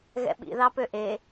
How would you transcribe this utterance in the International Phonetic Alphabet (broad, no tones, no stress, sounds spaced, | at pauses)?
ɣ ɛ̰ ɓ ḭ ð ɑ p ø ʔ e